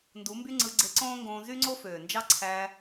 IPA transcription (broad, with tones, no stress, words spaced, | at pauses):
ndu˨˦mby˦ ŋ͡ǀɯ˧ɡ͡ǀe˧ǀõː˦ŋɡõː˧ zy˦ŋ͡ǀo˦føː˨nd͡ʒɑ˦ ǀʰæ˧